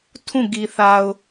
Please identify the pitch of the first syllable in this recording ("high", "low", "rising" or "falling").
falling